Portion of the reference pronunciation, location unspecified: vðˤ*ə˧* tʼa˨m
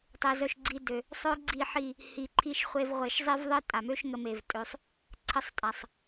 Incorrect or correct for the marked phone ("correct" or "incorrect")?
incorrect